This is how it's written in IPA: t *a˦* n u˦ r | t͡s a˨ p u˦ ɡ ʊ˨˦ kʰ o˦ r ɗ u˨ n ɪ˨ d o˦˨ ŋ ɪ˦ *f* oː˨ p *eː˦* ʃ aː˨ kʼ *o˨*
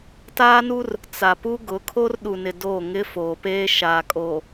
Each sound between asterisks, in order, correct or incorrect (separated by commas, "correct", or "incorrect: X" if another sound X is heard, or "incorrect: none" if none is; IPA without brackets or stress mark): incorrect: aː˦, correct, correct, incorrect: oː˨